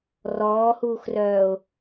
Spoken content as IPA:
r ɔː h uː x r œː ʊ̯

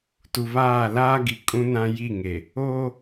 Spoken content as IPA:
t u˨ β aː˦˨ l aː˦ ɡ i˨ kʼ ũ˦ n ã˦ j i˦˨ ŋ e˨ | oː˦

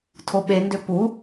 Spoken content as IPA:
tʰ o ɓ e n d ø p u

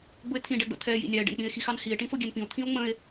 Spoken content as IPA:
ɡ͡b ʊ e̯ t̪ʰ ĩ ɖ ɛ ɡ͡b ə̰ t̪ʰ ɛ j ḭ nʲ ɑ e̯ ɖ ɛ̰ n k͡p ĩ e̯ x i x ɑ n h i e̯ ʈ ĩ f ʊ ɡʲ ɛ n p ĩ o̯ t̪ʰ ĩ o̯ ŋ͡m ə̃ e̯

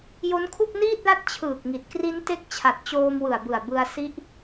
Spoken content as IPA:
j o˦˥ n kʰ u˥˩ k̚ n iː˥˩ t̚ l a˥˩ t̚ t͡ɕʰ ɯː˨˩ k̚ ŋ i˨˩ t̚ k r i˦˥ n t e˦˥ k̚ t͡ɕʰ a˨˩ t̚ t͡ɕ oː˧ m w ɯ˨˩ a̯ b ɯ˨˩ a̯ b ɯ˧ a̯ s i˦˥ ʔ

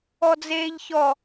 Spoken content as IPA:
ɔ d͡z eː ʎ ç ɔ

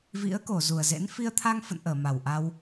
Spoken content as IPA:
v ḭ˧˥ ə̯ k o˧˩ z u˨˩ ə̯ z ḛ˧˥ n f i˧ ə̯ t̪ʰ a˧ ŋ f ə̰˧˨ n ʔ əː˧˩ m a˨˩ w ʔ a˧ w

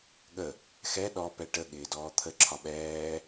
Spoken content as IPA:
ɠ ə | x ɛ ɗ ɔ p ɛ ʈ ə ɠ ɪː d ɔː t̪ʰ ə ǁʰ ɒ ɓ ɛː

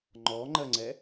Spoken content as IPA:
ŋ͡ǃ ɔ ŋ͡ǃ ɜ ŋ͡ǀ ɛ

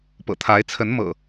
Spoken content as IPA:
p ɤ̰˨˩ t̪ʰ a˨˦ ɪ̯ t͡sʰ ə˨˦ n m ɤ̰˨˩

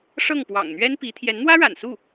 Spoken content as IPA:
ʂ ɤ˥˩ ŋ p w ɑ̰˨˩ ŋ n̪ ɥ ɛ˥ n p i˧˥ t̪ʰ j ɛ˧˥ n n̪ w ä˥ ɻ a̰˨˩ n s u˥˩

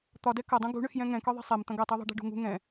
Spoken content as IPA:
t̪ ɒ d ɛ k ɐ dˤ ũ ɡ ṳ ɳ ʏ x j ɛ̃ ŋ ɛ̃ k ɒ ðˤ e̤ sˤ ɛ m t̪ ɐ̃ ɡ ɐ tˤ e ðˤ ɛ̤ ɖ ɛ̤ ɖ ṳ ŋ ṳ ŋ ɛ̃

